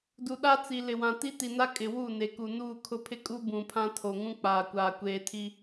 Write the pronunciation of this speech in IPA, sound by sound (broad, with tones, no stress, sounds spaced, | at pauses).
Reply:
d u˨ ɗ a˦ t͡s i˨ l ɪ˨ w ã˨ t i˦ t i˨ n a˦ kʼ ɪ˨ w u˦˨ n e˨ k u˨ n uː˦˨ kʰ ʊ˦ pʰ ɪ˦ kʼ u˦ b ũ˨ pʰ ã˦ tʰ o˨ ŋ ũ˦ k͡p aː˨ kʷ aː˨ kʷ eː˨ tʰ i˦